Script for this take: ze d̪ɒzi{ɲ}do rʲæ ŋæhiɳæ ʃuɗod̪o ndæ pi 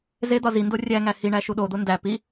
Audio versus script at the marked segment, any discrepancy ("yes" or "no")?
yes